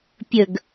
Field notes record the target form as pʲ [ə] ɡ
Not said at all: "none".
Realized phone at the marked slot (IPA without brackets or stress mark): ə